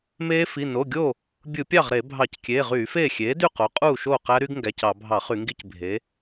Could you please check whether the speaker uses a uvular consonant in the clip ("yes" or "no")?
yes